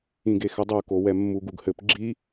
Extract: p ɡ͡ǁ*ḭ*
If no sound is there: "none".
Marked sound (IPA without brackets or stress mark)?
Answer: i